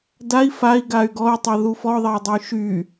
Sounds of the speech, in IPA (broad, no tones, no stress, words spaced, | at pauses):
dai̯ fai̯ɡay̯ ɡɔy̯tˤɛðu fɔðˤɛy̯dˤɜy̯ ʃy